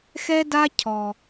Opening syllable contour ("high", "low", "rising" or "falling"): high